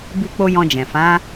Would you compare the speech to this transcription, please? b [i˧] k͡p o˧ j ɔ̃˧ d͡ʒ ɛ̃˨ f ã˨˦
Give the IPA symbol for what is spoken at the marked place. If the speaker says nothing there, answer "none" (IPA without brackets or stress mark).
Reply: i˧